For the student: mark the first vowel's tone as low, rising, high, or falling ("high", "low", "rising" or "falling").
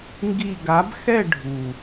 falling